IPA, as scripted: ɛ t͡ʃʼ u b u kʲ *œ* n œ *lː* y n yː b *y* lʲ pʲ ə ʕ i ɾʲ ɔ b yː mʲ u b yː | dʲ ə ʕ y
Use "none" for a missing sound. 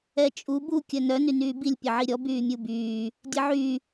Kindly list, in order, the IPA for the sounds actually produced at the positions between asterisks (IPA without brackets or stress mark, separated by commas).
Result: œ, n, i